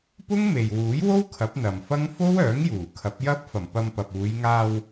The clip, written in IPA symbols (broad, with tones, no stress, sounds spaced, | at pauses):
p ʊ˥ ŋ m e˨ j w uː˨˥ j w o˥ w kʰ ɐ˨˥ p̚ n̪ ɐ˨ m f ɐ˥ ŋ f o˥ w œː˨˥ ŋ j uː˨˩ kʰ ɐ˨˥ p̚ j ɐ˥ p̚ f ɐ˨˩ m p ɐ˧ m p ɐ˨ p̚ uː˨˧ j ŋ aː˧ w